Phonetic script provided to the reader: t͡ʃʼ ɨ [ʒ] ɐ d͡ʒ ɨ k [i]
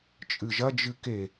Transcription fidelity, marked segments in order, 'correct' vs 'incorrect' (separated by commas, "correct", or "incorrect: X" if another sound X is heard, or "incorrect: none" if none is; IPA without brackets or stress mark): correct, incorrect: e